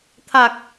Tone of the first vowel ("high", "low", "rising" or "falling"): low